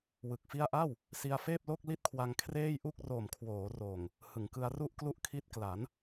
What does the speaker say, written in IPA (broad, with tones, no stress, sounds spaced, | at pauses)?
w ɯ˨˩ k̚ f i˥˩ a̯ ʔ a˥˩ w | s i˧ a̯ f eː˥˩ p̚ l o˥˩ k̚ l i˥˩ t̚ kʰ w a˧ ŋ kʰ r eː˥˩ j ʔ u˥˩ k̚ r oː˨˩ m kʰ w oː˩˦ r oː˨˩ ŋ | h ɯ˩˦ ŋ k ɯ˧ a̯ r u˥˩ ʔ k l u˥˩ ʔ kʰ i˦˥ t̚ k l a˩˦ n